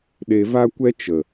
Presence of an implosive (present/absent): present